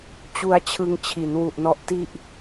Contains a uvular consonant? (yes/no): no